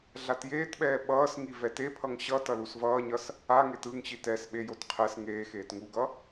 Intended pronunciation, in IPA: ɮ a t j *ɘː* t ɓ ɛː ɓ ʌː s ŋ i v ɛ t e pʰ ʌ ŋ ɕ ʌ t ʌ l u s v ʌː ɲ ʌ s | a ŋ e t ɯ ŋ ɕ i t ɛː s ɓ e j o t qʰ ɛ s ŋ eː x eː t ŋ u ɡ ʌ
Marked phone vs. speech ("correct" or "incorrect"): incorrect